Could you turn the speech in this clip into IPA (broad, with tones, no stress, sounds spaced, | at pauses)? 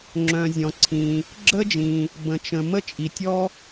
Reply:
ŋ͡ǁ œ̃˩ zʲ ɔ̃˩ ǀʰ ĩ˩ | ɡ͡ǁ ə˥ d͡ʒ ĩ˩ | b ə̃˩ t͡ʃ ə̃˩ m ə˥ t͡ʃʼ i˩ tʲ ɔ˥